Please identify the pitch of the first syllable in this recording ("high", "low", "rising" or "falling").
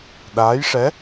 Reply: rising